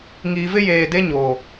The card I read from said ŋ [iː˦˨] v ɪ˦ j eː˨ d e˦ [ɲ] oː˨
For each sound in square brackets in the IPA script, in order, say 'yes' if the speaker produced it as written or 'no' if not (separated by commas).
no, yes